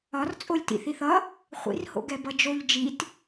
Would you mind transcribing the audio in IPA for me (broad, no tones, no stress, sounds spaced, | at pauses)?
ɒ r t͡sʼ o lʲ t ḭ θ i θ ʌ | χʷ ḭ r h o̰ ɡ ɛ b ʌ d͡ʒ o ʎ d͡ʒ i t